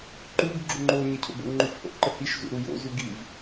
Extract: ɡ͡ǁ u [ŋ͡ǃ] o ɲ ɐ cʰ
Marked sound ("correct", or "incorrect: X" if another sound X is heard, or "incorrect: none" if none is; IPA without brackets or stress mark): correct